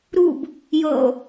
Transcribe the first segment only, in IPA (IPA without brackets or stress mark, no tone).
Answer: ɾ